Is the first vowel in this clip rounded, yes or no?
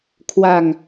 no